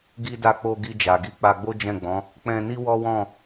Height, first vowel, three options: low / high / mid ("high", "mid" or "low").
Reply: high